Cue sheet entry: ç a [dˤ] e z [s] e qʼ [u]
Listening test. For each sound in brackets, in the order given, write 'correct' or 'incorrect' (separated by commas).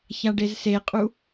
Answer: incorrect, correct, correct